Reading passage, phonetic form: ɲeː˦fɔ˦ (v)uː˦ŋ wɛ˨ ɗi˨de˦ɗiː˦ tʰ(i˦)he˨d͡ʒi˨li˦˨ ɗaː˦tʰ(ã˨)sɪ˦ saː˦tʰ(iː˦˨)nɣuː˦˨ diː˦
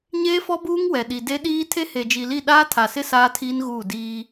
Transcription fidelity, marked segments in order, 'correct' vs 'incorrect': incorrect: b, incorrect: e˦, incorrect: a˨, incorrect: iː˦

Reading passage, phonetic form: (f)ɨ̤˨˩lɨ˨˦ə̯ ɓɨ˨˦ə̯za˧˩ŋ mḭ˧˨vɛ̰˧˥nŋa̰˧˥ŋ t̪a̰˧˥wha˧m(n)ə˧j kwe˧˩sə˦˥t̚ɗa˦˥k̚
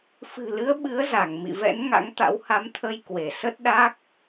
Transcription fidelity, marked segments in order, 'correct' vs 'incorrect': correct, incorrect: t̪ʰ

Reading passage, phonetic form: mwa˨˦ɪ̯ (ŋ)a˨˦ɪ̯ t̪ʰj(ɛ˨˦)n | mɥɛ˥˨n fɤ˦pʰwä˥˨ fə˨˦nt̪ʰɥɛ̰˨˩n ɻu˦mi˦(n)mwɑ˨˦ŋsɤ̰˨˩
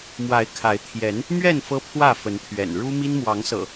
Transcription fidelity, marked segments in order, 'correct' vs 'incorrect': incorrect: kʰ, correct, correct

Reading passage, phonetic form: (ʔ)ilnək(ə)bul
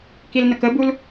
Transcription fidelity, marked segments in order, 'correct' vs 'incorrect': incorrect: k, correct

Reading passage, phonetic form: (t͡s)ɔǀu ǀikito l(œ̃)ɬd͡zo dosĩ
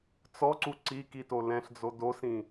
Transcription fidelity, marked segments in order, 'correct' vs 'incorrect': correct, incorrect: ɛ̃

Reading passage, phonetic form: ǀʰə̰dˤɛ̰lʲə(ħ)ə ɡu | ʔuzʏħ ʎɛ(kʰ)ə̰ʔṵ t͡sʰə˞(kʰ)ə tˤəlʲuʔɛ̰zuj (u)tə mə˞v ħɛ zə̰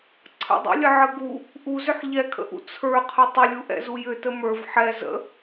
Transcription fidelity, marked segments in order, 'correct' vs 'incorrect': incorrect: ʕ, correct, incorrect: qʰ, incorrect: ʏ

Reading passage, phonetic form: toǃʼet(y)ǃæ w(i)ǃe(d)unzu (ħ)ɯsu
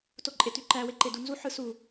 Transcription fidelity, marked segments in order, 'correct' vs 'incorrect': correct, incorrect: e, correct, correct

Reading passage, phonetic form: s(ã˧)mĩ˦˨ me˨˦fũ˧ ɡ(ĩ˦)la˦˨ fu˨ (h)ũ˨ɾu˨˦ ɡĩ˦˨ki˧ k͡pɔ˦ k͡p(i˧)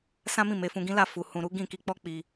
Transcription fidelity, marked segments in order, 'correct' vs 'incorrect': incorrect: ã˦, correct, correct, correct

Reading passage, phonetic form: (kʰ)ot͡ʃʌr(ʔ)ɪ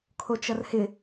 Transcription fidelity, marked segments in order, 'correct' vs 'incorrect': correct, incorrect: h

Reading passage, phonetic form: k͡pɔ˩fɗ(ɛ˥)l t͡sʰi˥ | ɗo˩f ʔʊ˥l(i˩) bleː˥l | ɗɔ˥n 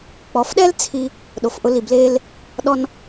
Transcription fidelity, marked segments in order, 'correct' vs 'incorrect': correct, correct

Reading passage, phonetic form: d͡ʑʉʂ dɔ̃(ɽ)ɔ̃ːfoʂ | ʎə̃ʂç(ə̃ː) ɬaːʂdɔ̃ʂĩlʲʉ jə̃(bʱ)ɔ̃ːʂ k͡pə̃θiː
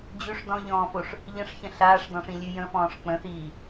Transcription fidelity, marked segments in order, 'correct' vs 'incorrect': incorrect: ʎ, incorrect: ə̃, incorrect: f

